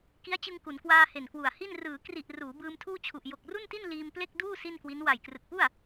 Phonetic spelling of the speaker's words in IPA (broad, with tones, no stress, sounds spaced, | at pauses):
k i˦˥ a̯ t͡ɕ ɯ˧ ŋ k u˩˦ n k w aː˧ h e˨˩ n k w u˨˩ a̯ h i˥˩ n r ɯː˩˦ k r i˨˩ ʔ r uː˩˦ b ɯː˧ m tʰ uː˥˩ t͡ɕʰ u˨˩ ʔ j o˨˩ k̚ r u˥˩ n t i˥˩ n l iː˧ m p l e˥˩ k̚ d uː˥˩ s i˥˩ n k w i˦˥ n w a˨˩ j k r ɯ˨˩ k̚ p u˥˩ a̯